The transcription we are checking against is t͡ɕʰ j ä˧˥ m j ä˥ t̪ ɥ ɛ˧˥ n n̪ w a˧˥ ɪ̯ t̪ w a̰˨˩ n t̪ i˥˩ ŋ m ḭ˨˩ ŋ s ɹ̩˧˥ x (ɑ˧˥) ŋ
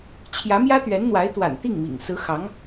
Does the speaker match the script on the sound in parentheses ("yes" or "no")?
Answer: yes